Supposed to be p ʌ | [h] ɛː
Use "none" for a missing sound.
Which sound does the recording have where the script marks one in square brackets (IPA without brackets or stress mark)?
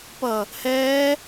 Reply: h